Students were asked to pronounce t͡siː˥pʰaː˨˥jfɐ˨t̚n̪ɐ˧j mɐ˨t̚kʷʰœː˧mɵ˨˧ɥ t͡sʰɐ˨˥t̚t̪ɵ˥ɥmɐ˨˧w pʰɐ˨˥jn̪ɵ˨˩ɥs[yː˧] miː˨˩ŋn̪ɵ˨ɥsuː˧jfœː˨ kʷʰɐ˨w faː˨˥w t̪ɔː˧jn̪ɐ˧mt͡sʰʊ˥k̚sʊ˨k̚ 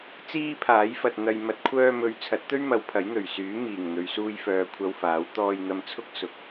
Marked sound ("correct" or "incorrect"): incorrect